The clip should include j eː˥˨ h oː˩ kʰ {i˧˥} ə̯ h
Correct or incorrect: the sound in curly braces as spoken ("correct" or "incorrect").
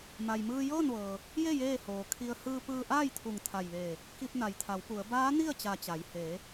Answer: incorrect